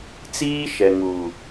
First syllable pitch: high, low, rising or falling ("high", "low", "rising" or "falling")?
high